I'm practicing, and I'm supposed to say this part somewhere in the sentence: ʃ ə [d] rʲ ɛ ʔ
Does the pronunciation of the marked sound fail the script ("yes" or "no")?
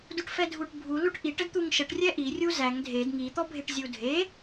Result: yes